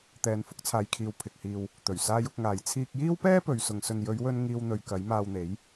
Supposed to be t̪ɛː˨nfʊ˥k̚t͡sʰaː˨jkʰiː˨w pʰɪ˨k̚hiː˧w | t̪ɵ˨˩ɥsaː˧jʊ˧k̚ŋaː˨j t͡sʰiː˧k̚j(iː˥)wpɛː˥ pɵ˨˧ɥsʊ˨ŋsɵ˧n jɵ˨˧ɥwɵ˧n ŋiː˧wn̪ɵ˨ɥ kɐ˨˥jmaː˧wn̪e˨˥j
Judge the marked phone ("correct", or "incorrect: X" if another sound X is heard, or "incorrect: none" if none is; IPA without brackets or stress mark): correct